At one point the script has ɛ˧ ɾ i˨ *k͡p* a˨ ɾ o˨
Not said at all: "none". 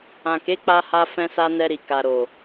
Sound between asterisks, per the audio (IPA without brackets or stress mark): k